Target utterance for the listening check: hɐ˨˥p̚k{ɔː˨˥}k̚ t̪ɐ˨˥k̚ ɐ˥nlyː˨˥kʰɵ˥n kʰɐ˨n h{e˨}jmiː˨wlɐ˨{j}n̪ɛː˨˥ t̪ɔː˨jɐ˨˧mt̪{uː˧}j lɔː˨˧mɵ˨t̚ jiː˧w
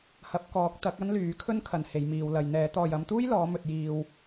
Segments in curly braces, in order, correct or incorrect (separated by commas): correct, correct, correct, incorrect